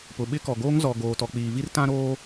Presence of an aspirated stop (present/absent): absent